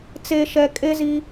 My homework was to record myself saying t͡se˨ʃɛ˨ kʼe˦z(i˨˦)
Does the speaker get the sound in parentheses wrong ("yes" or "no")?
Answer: yes